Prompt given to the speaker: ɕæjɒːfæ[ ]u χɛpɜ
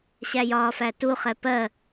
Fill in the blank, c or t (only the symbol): t